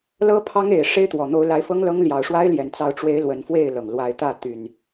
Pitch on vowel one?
high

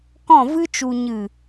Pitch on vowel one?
falling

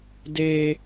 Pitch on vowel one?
high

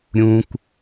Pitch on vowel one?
high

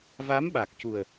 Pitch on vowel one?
rising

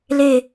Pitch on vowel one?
falling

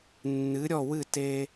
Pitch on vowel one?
rising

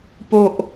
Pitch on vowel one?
low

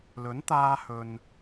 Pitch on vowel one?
rising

